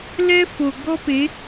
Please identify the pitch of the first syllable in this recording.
high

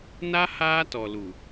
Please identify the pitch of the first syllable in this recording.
high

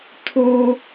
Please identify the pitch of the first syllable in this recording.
high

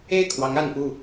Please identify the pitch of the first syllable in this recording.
falling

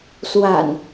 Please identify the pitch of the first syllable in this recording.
low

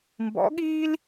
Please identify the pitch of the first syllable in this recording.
rising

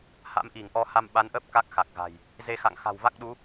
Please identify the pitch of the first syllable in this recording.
rising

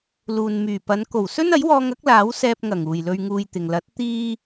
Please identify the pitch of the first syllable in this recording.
low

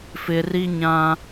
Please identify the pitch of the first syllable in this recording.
low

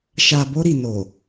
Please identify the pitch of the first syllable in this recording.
low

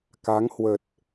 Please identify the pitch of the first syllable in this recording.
rising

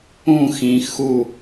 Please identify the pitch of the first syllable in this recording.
falling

